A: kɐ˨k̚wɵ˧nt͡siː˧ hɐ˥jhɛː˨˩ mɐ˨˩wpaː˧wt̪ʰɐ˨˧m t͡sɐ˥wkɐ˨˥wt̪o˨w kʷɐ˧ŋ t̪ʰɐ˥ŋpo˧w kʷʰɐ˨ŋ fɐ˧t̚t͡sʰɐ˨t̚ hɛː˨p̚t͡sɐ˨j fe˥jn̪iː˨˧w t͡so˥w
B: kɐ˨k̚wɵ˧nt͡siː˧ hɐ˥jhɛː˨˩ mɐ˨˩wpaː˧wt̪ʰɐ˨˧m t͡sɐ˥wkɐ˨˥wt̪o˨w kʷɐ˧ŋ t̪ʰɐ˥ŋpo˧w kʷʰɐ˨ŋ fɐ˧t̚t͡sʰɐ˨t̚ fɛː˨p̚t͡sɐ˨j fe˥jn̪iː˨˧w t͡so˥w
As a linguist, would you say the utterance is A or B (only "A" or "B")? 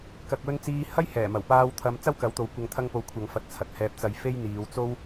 A